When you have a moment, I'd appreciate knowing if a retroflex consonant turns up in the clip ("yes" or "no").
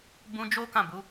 no